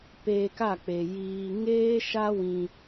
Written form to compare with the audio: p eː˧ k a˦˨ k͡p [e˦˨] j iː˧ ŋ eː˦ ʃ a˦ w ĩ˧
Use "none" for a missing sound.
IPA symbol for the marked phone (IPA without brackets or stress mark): e˨